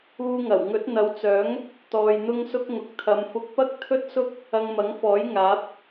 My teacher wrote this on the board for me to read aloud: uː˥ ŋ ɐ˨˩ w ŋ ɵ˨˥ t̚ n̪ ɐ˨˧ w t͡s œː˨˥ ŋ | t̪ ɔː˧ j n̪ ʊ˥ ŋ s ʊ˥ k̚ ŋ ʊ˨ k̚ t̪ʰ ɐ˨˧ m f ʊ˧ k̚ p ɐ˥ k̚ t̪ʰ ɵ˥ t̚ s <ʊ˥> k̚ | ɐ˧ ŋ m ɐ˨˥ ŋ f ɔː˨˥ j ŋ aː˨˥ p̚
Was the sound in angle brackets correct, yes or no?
yes